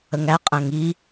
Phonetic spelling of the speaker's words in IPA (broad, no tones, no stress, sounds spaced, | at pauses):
ə ŋ æ qʼ æ̃ ŋ i